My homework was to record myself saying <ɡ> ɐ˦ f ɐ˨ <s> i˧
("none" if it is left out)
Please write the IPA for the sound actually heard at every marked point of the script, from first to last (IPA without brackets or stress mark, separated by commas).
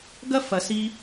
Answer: ɡ, s